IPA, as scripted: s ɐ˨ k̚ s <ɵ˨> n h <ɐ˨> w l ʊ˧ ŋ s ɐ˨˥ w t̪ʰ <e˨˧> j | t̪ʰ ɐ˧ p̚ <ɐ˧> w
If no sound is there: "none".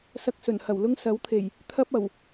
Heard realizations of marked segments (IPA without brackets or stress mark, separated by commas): ɵ˨˩, ɐ˨˩, e˨˩, ɐ˨˩